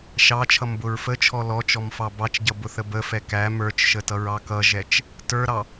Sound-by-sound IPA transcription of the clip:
ʃɑt͡ʃʰʌmbʊɹ fət͡ʃʰɔ lɔt͡ʃɔmfɑ bɑt͡ʃɟʌbʊθə bəfɛ kæ mə˞t͡ʃʃətʌɹɑ kʌʒɛt͡ʃ | tə˞ɾɑ

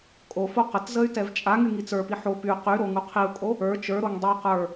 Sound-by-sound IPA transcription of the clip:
kʼofo qətzəy̯ tɛvt͡ʃʼaŋy ŋit͡sə˞pi ħo py qyɾo ŋuqʰiu̯kʼo | ə˞ t͡ʃə˞ɾoŋ dˤi qə˞

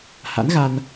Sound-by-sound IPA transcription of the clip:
ha̰˧˥nɣa˧n

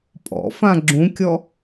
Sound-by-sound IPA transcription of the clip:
pʼɔ̰fã ɡ͡ǁũkʲɔ

